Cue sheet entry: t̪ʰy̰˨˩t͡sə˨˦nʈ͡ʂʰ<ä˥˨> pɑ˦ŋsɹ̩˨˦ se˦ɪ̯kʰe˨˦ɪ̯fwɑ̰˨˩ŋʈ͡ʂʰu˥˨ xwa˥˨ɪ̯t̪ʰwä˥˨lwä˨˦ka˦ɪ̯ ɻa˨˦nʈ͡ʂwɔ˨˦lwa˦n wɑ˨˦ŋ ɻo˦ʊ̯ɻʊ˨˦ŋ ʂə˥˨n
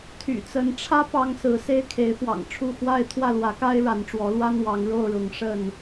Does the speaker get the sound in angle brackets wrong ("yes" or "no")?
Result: yes